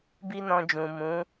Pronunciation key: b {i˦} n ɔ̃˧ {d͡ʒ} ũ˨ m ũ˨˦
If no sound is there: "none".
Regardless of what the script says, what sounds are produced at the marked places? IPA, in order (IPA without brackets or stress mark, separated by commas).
i˦, d͡ʒ